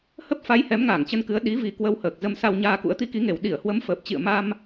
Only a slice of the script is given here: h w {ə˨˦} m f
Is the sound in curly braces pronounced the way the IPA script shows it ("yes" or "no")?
yes